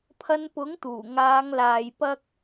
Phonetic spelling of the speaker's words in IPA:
pʰ ɐ˧ n p ʊ˨˥ ŋ t̪ uː˨˩ ŋ aː˨˧ ŋ l aː˨ j p ɐ˥ k̚

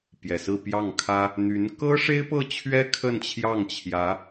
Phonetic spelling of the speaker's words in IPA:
p j ɛ˨˩ s ɹ̩˥˧ p j ɑ˥˩ ŋ kʰ ä˥ | n̪ y˧˥ n k ɤ˥ ʂ e˥ ɪ̯ p ɤ˥˩ t͡ɕʰ ɥ ɛ˥ kʰ ə˥˧ n t͡ɕʰ j ɑ˥˩ ŋ t͡ɕʰ j ä˧˥

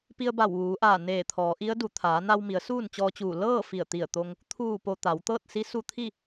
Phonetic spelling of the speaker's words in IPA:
p i˧ ə̯ b a˧˩ w ʋ uː˩˧ ʔ aː˧˩ n eː˧˩ t̪ʰ ɔː˩˧ ʔ i˧˥ ə̯ d u˧˩ t̪ʰ aː˩˧ n a˧ w m i˩˧ ə̯ s uː˥˨ n t͡ɕ ɔː˧ t͡ɕ uː˧˩ l ɤː˥˨ f i˧˩ ə̯ t̪ i˧˩ ə̯ t̪ o˧ ŋ | t̪ʰ uː˧˩ p o˩ t̪ a˩˧ w t̪ ɤː˥˨ t̚ s i˧˥ s u˧ t̪ʰ i˥˨

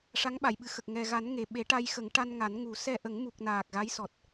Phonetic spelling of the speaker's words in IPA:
ʂ a˧˥ ŋ ɓ a˨˩˨ j ɓ ɨ˨˩˨ x ə˨˩ k̚ ŋ ɛ˨˩ ɣ a˨˩˦ n ŋ e˨˩ ɓ e˨˩˦ ʈ a˧ j x ə˨˩˦ ŋ ʈ a˧ n ŋ a˨˩˦ n ŋ u˨˩˦ s ɛ˧ ʔ ə˨˩˦ ŋ m u˨˩ k̚ n aː˨˩ k̚ ɣ a˧˥ j s ɔ˨˩ t̚

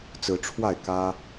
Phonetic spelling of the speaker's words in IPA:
t͡s ɹ̩˨˦ ʈ͡ʂʰ w a˥˨ ɪ̯ k ä˦

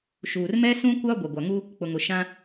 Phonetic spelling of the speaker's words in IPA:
ʃ uː˨ r m ɛ˦ s ũ˦ kʷ a˦ ɡʷ ɛ˨ ɡʷ a˨ ŋ u˦ | k͡p ʊ˨ ŋ ʊ˨ ʃ ã˦

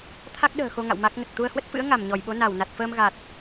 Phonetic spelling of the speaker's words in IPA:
t̪ʰ a˦˥ k̚ ɗ ə̤ː˨˩ x o˧ ŋ a̰˧˨ w m a˦˥ k̚ ŋ ə˨˩ t̚ t̪ u˧ ə̯ h w ə˦˥ t̚ f ɨ̰˧˥ ə̯ ŋ a˧˩ m ɲ ɔ˧˩ j ɓ o˨˦ n a˧˩ w n a˨˩ t̚ f əː˧ m ɣ a˨˩ t̚

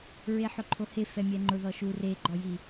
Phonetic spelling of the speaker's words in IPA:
ɹ e ħ ʊ ǃʰ o h e f ɛ mʲ ɛ ŋ͡ǃ ʊ ð ɔ ʃ u r e ɡ͡ǃ ɔ j i

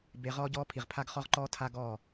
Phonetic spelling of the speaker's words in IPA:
b e˧ ʁ ɔː˦ ɟ ɔː˦ pʰ i˨ ʁ pʰ a˦ ɡ χ ɔ˦ ʁ ǃ ɔː˦ tʰ a˦ ɡ ɔː˦˨

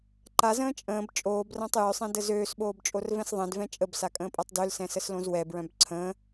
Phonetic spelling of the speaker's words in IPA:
ǃ a z ə̃ː t͡ʃʼ ə̃ː b t͡ʃʼ oː b r ã tˤ j ø sˤ ẽ d ə z øː s ɓ oː b t͡ʃʼ o r v ɛ̃ s ðˤ ɛ̃ d v ɛ̃ t͡ʃʼ ə b s a kʼ ə̃ː pʼ a tˤ d ø l s ɛ̃ s ə s l õ z w ɛ b ɹ œ̃ b ǀʰ ə̃ː

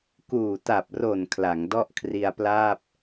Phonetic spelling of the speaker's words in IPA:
k uː˨˩ t a˨˩ p̚ r o˨˩ n kʰ l a˩˦ ŋ d ɔ˥˩ ʔ kʰ r i˧ a̯ p l aː˥˩ p̚

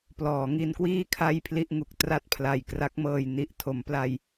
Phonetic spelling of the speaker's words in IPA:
p l ɔː˩˦ ŋ i˧ n k w iː˥˩ kʰ a˥˩ j pʰ l i˥˩ ʔ ŋ u˨˩ k̚ t r a˥˩ t̚ pʰ l a˨˩ j k r a˦˥ k̚ m ɤː˧ j n i˨˩ ʔ tʰ o˩˦ m p l a˧ j

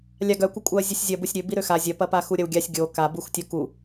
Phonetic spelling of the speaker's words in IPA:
lʲ a ɡ œ kʷ ɐ kʷʼ œ ɐ̯ zʲ ə sʲ zʲ ɐ b u sʲ ɾʲ ø b i ɾ ø x a zʲ ɐ p ɐ p a x u ɾʲ ɐ w ɡʲ a sʲ ɡʲ o k a b u x tʲ o k u

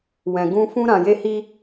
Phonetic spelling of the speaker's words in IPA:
w ɛ̃˨ ɡ ũ˧ f ũ˧ ɾ ã˨ j e˧ h i˦

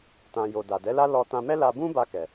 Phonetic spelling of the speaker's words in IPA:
t ã˨ j o˨ d a˨ d ɛ˨˦ l a˦ l ɔ˧ t ã˧ m ɛ˦ l a˧ b ũ˦ b a˧ k ɛ˨

